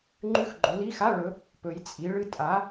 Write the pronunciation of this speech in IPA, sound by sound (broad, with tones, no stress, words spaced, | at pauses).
ŋ͡ǃʉ˧˥˧xɡ͡ǃo˩˧li˧˥˧xa˧˥˧ ɭɵ˩˥ | pɵ˩˧jt͡sʼi˩˧ɭɨ˥˧ tʼa˩˥